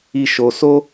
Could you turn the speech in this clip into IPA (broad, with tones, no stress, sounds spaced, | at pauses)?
i˦ ʃ o˧ s o˦